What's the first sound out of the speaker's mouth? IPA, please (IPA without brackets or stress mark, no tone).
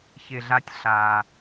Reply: ç